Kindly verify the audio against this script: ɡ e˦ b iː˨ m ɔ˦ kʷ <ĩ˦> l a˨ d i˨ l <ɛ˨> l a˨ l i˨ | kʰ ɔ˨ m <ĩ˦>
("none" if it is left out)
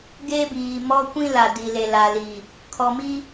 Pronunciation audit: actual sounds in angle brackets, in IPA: ĩ˦, e˨, i˦

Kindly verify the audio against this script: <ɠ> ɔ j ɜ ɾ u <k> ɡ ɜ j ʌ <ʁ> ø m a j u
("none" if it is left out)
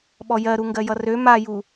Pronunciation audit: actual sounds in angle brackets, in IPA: ɓ, ŋ, r

